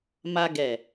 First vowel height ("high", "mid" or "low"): low